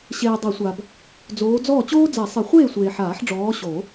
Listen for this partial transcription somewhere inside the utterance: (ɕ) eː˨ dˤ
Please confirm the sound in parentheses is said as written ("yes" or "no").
yes